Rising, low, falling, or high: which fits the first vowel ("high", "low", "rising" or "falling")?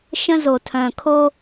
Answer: high